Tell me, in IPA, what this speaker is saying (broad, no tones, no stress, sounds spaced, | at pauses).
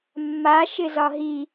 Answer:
mː a ʃ ɪ z ɒ ɦ i